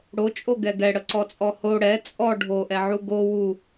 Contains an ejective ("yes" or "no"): yes